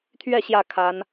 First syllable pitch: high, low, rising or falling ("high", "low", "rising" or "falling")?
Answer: falling